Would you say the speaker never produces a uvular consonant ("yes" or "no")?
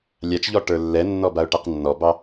no